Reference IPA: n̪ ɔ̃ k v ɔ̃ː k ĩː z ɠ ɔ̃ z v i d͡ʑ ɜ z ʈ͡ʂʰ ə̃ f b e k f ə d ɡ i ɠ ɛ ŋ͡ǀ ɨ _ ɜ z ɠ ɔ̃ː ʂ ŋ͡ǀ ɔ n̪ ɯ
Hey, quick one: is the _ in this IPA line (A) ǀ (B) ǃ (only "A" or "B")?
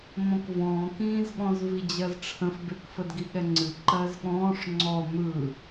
B